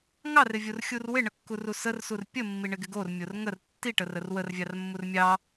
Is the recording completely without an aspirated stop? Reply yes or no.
yes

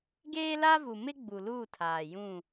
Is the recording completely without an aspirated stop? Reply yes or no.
no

